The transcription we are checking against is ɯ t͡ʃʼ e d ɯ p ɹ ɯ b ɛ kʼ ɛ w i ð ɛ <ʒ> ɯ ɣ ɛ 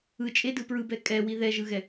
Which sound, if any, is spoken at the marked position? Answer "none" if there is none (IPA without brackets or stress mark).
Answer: ʒ